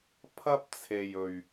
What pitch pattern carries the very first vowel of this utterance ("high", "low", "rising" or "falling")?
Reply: high